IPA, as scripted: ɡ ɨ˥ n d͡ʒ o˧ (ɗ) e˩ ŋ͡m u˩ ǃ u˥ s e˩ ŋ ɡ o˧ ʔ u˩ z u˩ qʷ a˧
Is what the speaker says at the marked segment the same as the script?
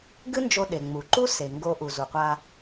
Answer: yes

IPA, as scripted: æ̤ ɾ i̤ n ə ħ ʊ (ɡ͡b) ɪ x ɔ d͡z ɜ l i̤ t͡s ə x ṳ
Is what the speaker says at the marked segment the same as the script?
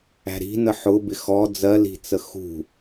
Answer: no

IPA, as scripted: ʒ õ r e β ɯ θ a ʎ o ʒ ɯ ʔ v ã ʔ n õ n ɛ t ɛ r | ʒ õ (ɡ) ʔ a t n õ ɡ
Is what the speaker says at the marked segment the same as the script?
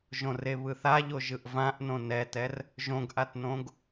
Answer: yes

